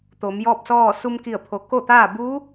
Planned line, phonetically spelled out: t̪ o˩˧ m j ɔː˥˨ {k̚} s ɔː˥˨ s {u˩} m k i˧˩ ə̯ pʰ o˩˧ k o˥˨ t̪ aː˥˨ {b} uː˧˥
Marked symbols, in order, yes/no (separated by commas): no, no, yes